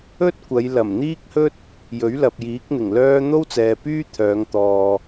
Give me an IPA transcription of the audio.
ɵ˥ t̚ kʷ ɐ˨˧ j l ɐ˨˩ m n̪ iː˥ k̚ h ɵ˥ t̚ | j ɵ˨˥ ɥ l ɐ˨ p̚ j iː˨˥ k̚ n̪ ɪ˨˩ ŋ l œː˥ n̪ o˥ w t͡s ɛː˨ p yː˥ t̪ʰ œː˨˧ ŋ t̪ ɔː˨

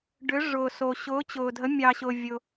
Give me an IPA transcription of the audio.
ɖ ʏ˨˦ ʐ ʊː˨ s o˨ ɕ ʊː˨˦ t͡ɕ ʊː˨ dʱ ə˨˦ mʲ ɑ˨ ɕ ʊː˨ vʲ ʊ˨

